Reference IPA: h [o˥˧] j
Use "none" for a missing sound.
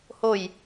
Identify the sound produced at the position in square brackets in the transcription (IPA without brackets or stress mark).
o˥˧